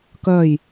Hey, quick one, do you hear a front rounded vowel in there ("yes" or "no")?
yes